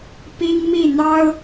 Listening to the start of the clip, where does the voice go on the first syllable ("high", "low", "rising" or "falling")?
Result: high